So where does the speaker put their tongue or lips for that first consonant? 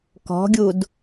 velum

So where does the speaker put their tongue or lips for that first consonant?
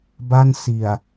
lips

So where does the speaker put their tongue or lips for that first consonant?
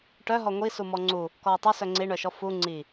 retroflex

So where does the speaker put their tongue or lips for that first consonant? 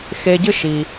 velum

